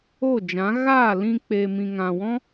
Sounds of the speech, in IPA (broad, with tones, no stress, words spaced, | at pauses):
o˦˨d͡ʒã˨˦ ɣaː˦˨lĩ˧ k͡pe˨mĩ˨ŋã˨wɔ̃˦